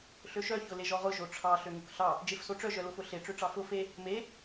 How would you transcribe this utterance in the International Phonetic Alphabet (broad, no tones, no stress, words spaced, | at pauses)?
ɬøʃœ çʊleʒɔʁʊ ʒoʈ͡ʂʰɑ ɬøŋʊkɬɑ | d͡ʒefsoʈ͡ʂœ ʒœlʊfʊɬe ʈ͡ʂøʈ͡ʂɑfʊ fe | me